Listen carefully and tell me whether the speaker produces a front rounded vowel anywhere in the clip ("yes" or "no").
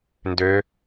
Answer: yes